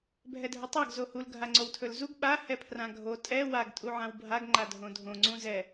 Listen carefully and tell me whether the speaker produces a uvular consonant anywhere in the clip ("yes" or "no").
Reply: no